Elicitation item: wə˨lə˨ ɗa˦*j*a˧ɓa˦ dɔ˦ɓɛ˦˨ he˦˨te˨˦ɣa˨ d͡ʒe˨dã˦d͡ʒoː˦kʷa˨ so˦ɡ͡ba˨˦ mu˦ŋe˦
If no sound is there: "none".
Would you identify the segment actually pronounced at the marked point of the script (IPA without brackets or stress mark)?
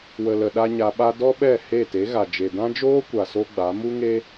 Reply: ɲ